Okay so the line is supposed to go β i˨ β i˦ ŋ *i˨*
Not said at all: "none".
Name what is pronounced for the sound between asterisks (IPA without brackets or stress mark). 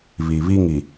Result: i˨